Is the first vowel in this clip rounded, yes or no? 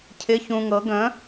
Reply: no